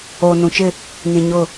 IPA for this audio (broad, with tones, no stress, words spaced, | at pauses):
oː˨nũ˨t͡ʃɪ˦˨ | nĩ˨ɲʊ˦˨